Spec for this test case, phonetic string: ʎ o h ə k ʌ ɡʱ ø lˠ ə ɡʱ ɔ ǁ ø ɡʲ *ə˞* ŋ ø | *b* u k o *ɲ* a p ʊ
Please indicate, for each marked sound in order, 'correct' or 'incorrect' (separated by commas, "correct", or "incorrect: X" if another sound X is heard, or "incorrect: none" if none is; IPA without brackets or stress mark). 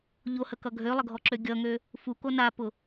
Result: incorrect: ʌ, incorrect: f, incorrect: n